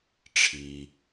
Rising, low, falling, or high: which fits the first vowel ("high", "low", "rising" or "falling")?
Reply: low